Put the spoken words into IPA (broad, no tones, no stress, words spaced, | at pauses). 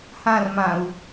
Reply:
hãrmãu̯